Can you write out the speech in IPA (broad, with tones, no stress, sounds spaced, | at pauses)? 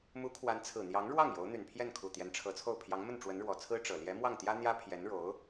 m u˧˥ kʰ w a˧˥ n t͡sʰ ɹ̩˨˩ n̪ j ɑ˧˥ ŋ ɻ w ɑ˥˩ ŋ j o˧˥ ʊ̯ n̪ y˨˩ n pʰ j ɛ˥˩ n kʰ u˨˩ t̪ j ɛ˧˥ n ʈ͡ʂʰ ɤ˧˥ t͡sʰ o˥˩ ʊ̯ pʰ j ɑ˧˥ ŋ m ə˥˩ n ʈ͡ʂ w ə˧˥ n ɻ w ɔ˨˩ t͡sʰ ɹ̩˥ ʈ͡ʂ ɤ˨˩ l j ɛ˧˥ m w ɑ˥˩ ŋ t̪ j ä˥ n̪ j ä˥ pʰ j ɛ˧˥ n ɻ o˧˥ ʊ̯